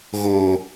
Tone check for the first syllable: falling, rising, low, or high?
low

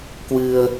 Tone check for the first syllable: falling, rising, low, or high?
low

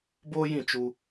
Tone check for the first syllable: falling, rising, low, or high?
high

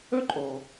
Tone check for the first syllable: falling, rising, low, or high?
high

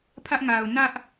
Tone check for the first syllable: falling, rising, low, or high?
high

